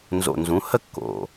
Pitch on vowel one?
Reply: low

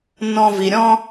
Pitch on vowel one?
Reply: high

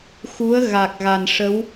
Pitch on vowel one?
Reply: rising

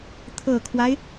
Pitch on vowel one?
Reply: low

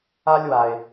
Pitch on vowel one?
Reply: high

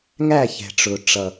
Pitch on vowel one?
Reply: falling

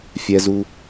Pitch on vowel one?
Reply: low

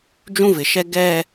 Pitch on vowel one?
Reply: high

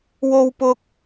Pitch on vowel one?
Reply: high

